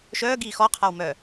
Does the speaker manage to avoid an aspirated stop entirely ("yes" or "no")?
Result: no